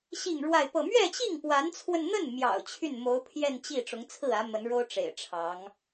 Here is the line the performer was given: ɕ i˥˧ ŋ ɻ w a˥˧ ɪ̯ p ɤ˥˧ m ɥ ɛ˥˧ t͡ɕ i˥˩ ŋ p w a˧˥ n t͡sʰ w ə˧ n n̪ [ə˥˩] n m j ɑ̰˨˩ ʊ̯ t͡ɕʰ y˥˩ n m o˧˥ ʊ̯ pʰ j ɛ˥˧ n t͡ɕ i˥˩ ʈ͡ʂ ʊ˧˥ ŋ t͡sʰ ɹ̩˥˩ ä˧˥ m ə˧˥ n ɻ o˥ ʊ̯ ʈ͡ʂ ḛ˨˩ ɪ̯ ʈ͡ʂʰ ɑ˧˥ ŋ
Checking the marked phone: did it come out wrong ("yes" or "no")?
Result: no